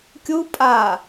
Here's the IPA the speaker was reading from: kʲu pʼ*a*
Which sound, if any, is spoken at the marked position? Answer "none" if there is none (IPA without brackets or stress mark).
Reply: a